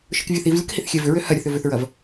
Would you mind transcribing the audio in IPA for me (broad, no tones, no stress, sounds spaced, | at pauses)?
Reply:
ʃ ɯ k vʲ ɐ θ i v lʲ ə k h i θ xʲ ɛ v ʏ ɹ ø h ɐ ɾʲ ə θ ʏ v ʏ θ ɹ ɐ v